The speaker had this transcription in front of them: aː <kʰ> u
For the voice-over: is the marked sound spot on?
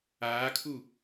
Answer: yes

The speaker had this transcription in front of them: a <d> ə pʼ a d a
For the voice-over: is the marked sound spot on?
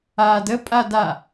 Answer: yes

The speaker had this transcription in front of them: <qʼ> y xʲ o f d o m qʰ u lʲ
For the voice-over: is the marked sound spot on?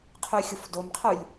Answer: no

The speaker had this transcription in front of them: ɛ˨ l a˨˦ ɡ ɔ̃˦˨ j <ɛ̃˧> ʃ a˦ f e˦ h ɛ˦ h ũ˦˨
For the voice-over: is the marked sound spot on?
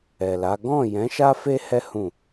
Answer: no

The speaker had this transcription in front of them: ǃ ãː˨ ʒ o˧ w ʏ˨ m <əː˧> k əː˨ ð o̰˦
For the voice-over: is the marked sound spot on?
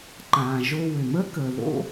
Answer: no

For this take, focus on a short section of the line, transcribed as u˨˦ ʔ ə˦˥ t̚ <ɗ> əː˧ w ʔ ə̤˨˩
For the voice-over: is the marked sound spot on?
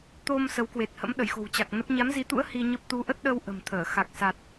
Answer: yes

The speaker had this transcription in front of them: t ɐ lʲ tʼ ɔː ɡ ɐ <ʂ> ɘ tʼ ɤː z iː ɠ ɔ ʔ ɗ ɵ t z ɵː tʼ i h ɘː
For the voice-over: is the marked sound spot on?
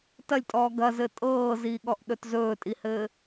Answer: no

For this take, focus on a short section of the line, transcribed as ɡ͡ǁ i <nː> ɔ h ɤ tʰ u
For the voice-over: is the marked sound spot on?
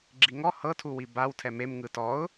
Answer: no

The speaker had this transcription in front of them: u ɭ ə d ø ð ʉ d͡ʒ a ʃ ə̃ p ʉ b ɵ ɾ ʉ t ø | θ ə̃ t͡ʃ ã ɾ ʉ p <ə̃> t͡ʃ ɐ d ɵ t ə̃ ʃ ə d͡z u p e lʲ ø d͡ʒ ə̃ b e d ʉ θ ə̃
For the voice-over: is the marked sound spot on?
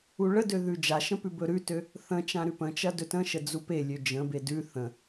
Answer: yes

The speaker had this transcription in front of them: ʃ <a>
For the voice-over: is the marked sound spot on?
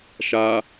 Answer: yes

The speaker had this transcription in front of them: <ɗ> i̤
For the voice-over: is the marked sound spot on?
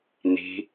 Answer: no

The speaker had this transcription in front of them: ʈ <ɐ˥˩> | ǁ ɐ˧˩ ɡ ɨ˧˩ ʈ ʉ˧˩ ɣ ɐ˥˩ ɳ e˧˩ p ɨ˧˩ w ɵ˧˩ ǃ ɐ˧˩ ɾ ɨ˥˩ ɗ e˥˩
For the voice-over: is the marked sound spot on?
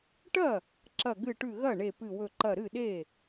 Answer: yes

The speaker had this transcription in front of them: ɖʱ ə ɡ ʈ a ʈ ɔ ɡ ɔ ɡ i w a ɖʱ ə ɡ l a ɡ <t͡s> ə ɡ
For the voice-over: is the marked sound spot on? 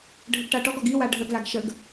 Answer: no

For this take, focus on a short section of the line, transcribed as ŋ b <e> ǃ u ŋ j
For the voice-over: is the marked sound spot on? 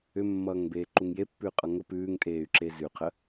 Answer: no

